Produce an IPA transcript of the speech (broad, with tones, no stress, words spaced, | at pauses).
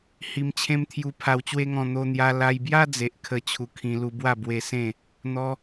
hi˧mt͡ɕʰẽ˦mt̪ʰju˧ pʰa˧wt͡ɕwe˦ŋɔ̃˧ n̪o˧n̪ja˧ la˧jbja˦ d͡ze˨ʔ kʰə˦ t͡ɕʰu˧kʰĩ˧lu˧bwa˥˧ bwe˧sẽ˥˧ | n̪ɔ˦